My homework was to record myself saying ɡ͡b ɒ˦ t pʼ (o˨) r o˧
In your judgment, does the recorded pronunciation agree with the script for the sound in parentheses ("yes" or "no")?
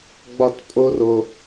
no